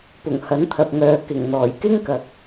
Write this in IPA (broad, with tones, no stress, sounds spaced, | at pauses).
p ʊ˨˩ ŋ h ɐ˨˥ n t̪ʰ ɐ˨ p̚ ŋ œː˨ k ɪ˨˩ ŋ n̪ ɔː˨˩ j k ɪ˥ ŋ k ɐ˨ k̚